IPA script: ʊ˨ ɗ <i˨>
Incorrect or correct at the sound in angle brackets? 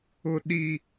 correct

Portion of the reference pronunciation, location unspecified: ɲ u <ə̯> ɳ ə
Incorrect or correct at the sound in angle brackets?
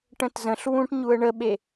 correct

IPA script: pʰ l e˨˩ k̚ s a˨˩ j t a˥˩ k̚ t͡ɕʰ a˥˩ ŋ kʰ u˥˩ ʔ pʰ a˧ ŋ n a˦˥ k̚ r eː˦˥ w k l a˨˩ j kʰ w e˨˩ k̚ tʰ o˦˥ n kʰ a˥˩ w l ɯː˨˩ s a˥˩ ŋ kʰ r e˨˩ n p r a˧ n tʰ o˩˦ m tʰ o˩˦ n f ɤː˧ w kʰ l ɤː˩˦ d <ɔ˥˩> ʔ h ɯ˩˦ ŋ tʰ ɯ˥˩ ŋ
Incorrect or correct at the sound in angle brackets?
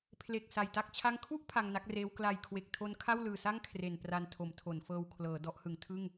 incorrect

